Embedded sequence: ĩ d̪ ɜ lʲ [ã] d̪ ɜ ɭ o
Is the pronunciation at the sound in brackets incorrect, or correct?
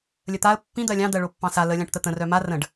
incorrect: ɑ̃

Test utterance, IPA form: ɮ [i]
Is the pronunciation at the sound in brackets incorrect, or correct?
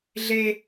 incorrect: e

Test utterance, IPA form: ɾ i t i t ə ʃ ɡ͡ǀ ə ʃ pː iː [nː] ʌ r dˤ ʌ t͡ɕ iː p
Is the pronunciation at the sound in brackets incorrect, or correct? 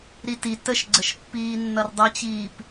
correct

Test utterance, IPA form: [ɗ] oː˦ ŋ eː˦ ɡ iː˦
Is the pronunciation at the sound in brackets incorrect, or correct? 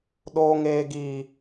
correct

